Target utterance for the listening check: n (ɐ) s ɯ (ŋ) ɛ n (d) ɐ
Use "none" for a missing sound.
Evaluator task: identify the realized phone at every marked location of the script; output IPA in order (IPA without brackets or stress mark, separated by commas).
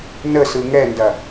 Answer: ə, ŋ, d